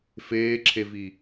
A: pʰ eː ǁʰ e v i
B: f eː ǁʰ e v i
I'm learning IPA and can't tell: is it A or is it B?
B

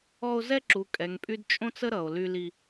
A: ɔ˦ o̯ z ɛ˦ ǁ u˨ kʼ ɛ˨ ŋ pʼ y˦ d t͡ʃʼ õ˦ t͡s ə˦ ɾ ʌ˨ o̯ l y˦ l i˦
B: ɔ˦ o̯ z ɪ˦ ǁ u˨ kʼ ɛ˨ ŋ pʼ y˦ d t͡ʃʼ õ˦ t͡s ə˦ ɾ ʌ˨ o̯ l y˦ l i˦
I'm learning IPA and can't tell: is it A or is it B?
A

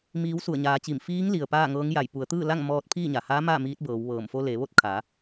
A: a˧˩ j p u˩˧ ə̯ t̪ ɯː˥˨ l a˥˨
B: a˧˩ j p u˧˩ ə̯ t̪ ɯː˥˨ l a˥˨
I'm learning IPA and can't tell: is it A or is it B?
A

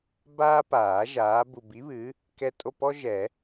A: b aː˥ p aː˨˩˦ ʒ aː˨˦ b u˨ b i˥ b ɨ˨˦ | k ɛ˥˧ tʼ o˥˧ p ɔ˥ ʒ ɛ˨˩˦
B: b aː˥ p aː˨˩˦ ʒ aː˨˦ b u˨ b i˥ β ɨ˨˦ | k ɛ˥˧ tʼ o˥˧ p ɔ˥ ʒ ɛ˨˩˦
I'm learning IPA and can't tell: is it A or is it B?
B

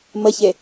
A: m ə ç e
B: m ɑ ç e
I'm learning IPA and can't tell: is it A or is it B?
A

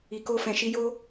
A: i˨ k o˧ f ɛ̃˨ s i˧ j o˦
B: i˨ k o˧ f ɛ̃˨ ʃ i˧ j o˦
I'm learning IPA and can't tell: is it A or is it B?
B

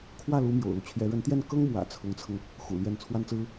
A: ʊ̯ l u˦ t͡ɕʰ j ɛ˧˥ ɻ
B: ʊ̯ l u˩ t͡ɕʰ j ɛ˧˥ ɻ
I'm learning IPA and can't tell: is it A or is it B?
A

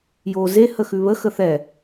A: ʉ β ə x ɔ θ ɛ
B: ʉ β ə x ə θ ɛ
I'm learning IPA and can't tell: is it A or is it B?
B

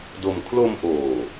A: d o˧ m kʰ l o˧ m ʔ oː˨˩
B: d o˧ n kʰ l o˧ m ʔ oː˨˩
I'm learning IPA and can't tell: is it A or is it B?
A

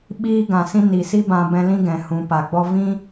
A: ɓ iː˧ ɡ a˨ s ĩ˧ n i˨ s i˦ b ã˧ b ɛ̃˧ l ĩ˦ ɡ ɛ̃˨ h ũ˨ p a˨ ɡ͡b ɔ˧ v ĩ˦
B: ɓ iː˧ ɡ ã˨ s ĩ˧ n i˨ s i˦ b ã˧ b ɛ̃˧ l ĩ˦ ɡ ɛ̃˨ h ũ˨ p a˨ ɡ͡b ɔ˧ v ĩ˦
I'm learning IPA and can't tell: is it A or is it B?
B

